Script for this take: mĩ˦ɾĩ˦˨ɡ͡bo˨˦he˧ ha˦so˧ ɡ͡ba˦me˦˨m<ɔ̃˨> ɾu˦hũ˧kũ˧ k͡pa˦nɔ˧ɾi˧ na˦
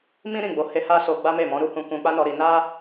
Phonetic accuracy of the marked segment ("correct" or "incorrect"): incorrect